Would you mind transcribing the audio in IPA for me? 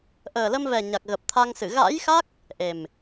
ʔəː˨˩lə˧mvɛ˨˩ ɲa˨˩k̚ɣə˨˩p̚t̪ʰa˧ŋsɨ˧˩ ɣa̰˧˥jxa˦˥k̚ | ʔe˨˩m

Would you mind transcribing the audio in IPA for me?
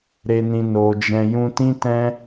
ɾe˧nĩ˧ no˨d͡ʒɛ̃˧ jũ˧tĩ˦tɛ̃˦

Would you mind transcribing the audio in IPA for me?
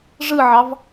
ʐɯʕɑv

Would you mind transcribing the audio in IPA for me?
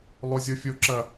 lˠozʲofʲoǁɐ

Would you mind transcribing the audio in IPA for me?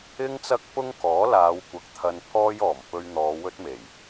ɪ˧ŋt͡sɐ˧k̚ pʊ˥ŋkɔː˨˥laː˨˧wkʷɐ˨k̚ t̪ʰɐ˧npʰɔː˥jɔː˨˩m pɵ˧ɥn̪ɔː˨˧ wɵ˥t̚me˨˩j

